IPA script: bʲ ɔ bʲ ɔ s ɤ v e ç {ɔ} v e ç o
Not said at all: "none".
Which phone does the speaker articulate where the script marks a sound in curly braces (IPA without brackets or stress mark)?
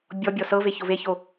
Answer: o